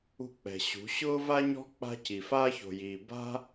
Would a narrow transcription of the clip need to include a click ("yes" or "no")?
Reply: no